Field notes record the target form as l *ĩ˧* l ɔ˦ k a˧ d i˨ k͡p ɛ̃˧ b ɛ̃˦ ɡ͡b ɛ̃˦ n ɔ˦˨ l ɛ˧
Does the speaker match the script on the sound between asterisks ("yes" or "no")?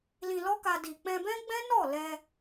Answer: yes